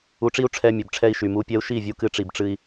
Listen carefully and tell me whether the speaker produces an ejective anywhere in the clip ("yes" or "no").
no